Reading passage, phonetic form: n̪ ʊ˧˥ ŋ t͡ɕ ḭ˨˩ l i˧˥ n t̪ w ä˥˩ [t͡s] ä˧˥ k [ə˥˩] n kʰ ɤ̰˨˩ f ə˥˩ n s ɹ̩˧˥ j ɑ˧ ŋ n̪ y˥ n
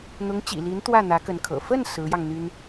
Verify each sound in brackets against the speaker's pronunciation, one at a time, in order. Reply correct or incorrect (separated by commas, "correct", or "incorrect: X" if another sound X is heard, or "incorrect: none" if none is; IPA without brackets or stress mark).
incorrect: n̪, incorrect: ə˧˥